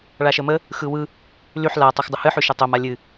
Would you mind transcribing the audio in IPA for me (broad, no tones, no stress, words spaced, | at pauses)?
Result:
ɭaʃəmə | xɯwɯ | lyħ la tˤoxdˤəhɨ ħyʃətˤom alʲɨ